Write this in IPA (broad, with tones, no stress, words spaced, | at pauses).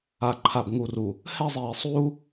a˨ǃʰa˨bŋu˨ru˨ | hɛ˦˨zˤiː˨sˤuː˦